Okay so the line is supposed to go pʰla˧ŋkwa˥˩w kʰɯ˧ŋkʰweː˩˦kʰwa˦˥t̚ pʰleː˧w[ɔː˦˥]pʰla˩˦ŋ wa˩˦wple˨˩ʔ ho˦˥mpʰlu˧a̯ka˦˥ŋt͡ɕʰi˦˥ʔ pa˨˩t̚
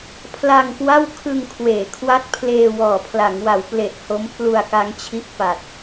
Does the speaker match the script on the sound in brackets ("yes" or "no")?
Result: no